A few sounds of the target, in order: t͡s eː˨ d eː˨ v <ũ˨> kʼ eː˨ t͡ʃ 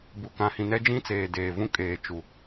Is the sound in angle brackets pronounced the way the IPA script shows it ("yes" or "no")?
no